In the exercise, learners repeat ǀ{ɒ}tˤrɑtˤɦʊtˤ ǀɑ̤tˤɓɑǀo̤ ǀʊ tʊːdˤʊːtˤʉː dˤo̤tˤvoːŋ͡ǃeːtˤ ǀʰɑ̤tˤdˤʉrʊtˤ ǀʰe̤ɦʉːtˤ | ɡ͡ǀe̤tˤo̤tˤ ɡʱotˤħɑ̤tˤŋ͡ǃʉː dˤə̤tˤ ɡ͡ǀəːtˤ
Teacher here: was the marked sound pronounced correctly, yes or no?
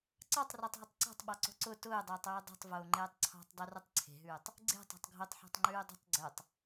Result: no